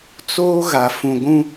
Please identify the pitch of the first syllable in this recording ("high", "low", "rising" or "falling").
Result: high